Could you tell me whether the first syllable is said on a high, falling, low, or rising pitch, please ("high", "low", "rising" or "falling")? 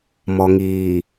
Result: low